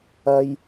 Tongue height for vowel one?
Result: low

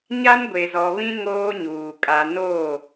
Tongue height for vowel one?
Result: low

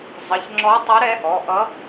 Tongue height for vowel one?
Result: mid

